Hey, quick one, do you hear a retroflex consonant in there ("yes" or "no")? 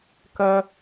no